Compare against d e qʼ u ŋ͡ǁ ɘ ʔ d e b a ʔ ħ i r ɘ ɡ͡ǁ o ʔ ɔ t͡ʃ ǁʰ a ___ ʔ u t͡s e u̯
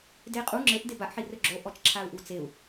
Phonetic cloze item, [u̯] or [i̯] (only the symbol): u̯